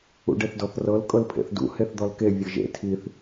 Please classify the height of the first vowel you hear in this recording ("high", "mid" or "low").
high